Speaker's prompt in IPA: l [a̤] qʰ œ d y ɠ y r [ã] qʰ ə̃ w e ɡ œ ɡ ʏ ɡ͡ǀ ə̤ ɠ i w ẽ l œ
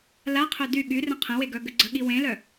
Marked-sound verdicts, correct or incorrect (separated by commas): incorrect, incorrect